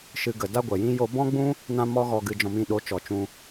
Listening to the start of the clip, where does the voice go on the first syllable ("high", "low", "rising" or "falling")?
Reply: high